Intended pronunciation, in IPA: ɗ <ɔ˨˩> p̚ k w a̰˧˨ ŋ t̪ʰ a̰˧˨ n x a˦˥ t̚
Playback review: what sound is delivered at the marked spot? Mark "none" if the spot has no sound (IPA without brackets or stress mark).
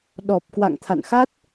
ɔ˨˩